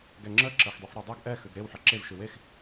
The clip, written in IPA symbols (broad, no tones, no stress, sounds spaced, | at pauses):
ɡ ɛ ŋ͡ǁ ə ǁ ɜ x dˤ e f ɾ e dˤ ɛ ɡ ʔ ɛ x ʉ ɡ ɾ e w ħ ɜ ǁ e v ʃ ʉ w e x